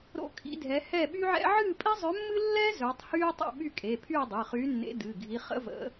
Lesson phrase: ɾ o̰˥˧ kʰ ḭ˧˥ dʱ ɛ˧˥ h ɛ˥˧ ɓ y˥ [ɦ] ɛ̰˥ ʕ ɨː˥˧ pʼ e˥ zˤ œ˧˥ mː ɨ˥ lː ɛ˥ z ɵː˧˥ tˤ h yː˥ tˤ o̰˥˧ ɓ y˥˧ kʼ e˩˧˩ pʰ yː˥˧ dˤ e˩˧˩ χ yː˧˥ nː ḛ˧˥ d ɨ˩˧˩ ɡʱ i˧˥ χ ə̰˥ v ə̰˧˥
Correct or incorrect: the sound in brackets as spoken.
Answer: incorrect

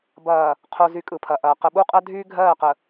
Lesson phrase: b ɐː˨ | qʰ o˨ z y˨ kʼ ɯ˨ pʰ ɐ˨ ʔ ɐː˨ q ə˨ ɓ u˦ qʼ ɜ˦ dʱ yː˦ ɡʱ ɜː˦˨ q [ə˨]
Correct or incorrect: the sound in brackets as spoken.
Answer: correct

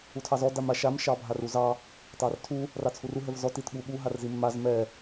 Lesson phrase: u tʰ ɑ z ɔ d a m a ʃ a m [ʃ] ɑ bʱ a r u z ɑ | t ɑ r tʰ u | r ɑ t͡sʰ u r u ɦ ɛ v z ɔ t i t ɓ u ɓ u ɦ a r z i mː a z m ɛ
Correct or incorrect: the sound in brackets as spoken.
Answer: correct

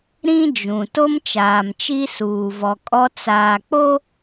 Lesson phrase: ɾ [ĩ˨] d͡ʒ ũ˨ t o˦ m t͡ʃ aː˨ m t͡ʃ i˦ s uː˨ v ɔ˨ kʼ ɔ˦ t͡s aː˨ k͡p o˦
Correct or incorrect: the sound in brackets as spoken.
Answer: incorrect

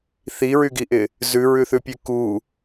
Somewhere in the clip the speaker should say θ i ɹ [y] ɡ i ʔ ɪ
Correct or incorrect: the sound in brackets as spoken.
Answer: correct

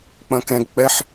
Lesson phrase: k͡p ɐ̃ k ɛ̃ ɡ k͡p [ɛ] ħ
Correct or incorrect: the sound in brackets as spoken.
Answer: correct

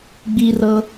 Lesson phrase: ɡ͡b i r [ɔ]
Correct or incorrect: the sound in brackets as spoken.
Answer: incorrect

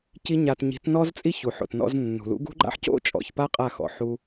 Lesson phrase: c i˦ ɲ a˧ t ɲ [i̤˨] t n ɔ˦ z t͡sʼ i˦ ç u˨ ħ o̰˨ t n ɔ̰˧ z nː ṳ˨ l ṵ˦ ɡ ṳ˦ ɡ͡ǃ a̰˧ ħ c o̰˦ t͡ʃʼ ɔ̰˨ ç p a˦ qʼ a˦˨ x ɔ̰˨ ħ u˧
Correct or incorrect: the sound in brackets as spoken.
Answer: incorrect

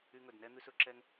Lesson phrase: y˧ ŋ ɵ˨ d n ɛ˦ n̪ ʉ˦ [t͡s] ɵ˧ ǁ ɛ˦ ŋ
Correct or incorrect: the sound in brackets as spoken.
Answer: incorrect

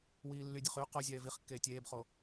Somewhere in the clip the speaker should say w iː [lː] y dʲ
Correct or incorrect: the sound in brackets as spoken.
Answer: correct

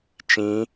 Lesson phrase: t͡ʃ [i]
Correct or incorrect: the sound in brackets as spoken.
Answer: incorrect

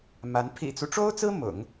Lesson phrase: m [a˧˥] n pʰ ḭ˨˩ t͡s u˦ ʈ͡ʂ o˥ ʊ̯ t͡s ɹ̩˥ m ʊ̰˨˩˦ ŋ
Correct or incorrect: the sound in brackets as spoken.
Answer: correct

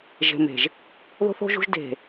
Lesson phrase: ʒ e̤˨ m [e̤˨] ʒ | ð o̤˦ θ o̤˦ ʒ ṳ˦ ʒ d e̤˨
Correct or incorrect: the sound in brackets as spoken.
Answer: correct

